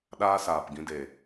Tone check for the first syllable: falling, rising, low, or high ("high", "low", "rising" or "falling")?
high